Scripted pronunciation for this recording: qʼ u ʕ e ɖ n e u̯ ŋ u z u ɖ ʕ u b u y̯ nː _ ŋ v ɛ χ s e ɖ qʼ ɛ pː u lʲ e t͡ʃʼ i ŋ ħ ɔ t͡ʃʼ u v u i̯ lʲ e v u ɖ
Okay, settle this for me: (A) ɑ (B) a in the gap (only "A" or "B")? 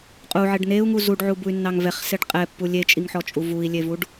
A